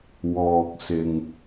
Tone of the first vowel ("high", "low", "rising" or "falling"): low